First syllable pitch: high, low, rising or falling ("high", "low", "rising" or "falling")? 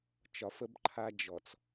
low